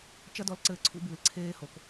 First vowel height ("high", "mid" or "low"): low